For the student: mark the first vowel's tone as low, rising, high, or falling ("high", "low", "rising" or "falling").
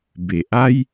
low